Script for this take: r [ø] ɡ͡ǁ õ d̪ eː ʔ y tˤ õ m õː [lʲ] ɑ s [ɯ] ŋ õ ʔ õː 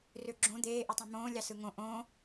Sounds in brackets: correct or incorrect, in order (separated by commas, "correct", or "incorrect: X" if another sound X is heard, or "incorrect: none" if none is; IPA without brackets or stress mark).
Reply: correct, correct, correct